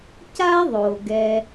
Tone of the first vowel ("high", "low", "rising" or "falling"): high